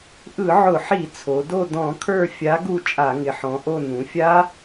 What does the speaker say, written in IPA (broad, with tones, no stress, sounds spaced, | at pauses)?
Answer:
ʔ ɯ˧˩˧ ʕ ʊ˧˩˧ ħ i˧˩˧ t͡sʰ o˩˧ d o˦˨ d ɔ̃˧˩˧ kʰ ə˞˦˨ fʲ a˨˥ ɡ u˦˨ t͡ʃʼ a˧˩˧ ŋ ɪ˩˧ ħ ɔ̃˩˧ ʔ o˦˨ n ũ˩˧ fʲ a˦˥